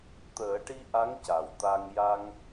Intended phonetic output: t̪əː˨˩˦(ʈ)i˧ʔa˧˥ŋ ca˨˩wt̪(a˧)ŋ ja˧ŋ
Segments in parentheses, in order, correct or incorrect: correct, correct

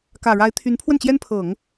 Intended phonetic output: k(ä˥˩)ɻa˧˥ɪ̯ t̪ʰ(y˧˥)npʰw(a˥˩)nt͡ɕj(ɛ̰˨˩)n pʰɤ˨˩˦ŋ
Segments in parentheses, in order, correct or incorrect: incorrect, correct, incorrect, incorrect

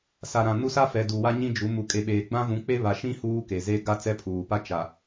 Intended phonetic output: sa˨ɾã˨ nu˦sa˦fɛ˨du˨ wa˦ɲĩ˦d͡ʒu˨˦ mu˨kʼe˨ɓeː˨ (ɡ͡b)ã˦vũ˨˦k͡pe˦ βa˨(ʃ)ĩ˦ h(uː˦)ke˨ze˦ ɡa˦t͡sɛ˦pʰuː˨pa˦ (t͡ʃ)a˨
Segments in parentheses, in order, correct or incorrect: correct, correct, correct, correct

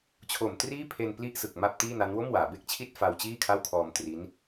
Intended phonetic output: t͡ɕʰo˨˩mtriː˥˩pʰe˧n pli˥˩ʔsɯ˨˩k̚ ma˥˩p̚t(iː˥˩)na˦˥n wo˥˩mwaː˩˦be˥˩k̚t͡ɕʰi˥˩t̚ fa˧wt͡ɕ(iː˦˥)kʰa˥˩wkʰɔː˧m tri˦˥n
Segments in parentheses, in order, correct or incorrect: correct, incorrect

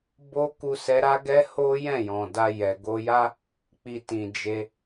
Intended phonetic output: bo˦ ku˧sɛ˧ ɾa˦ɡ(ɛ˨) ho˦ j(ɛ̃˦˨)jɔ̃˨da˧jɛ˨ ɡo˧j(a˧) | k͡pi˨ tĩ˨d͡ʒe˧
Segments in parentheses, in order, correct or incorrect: incorrect, correct, incorrect

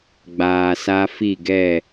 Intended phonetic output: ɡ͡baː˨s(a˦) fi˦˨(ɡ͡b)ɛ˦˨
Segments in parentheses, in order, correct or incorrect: correct, incorrect

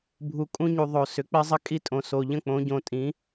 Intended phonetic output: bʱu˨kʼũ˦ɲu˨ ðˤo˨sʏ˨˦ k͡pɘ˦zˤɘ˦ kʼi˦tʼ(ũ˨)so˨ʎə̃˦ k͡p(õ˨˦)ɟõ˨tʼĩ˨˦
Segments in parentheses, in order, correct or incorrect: incorrect, correct

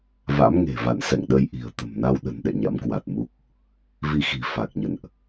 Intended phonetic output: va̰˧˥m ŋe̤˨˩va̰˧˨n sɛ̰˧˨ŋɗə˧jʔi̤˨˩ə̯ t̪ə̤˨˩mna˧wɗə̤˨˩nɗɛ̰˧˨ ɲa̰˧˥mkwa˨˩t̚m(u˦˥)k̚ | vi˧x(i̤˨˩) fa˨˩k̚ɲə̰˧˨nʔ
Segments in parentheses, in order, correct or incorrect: correct, correct

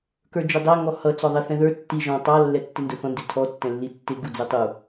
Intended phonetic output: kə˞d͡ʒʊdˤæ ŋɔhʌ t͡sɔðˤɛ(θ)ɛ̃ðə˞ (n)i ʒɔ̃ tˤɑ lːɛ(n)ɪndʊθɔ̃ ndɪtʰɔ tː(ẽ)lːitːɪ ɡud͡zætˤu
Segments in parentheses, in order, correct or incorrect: correct, incorrect, incorrect, incorrect

